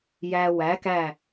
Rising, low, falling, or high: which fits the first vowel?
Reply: low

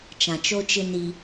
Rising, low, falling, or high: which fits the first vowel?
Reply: low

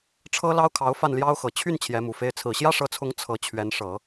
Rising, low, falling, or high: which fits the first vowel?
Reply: high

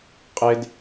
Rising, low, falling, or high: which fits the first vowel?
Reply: high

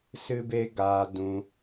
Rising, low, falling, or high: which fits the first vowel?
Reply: high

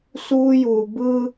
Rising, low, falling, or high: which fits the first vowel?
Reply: high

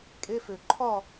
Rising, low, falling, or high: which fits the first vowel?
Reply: high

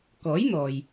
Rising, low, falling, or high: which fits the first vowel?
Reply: rising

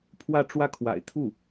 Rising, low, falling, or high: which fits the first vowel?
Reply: falling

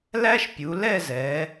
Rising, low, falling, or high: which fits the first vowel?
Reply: high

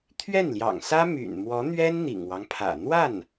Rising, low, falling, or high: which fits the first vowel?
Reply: falling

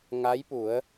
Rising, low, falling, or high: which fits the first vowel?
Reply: rising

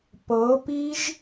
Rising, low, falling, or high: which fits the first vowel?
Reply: rising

